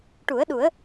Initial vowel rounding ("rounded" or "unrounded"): rounded